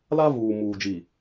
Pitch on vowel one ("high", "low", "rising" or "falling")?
high